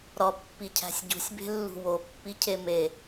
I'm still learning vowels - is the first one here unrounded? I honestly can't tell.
no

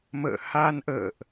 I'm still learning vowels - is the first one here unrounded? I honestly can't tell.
yes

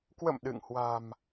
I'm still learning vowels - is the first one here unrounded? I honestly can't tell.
yes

